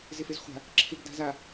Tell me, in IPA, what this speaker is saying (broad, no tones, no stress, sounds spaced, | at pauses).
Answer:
z ɪ f e z χʷ a̤ | ǁʰ ɪ ɡ d a̤ z a